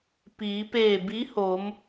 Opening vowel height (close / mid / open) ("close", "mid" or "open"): close